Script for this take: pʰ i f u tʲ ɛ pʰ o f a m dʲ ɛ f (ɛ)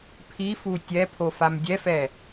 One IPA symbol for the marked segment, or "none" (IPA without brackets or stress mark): ɛ